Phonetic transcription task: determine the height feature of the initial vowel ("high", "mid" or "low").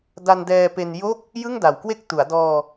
low